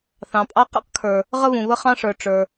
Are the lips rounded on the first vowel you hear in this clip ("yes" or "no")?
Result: no